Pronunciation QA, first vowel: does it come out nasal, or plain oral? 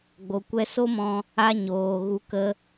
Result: oral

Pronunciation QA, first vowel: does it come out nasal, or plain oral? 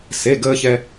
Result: oral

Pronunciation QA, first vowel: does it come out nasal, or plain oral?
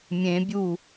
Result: nasal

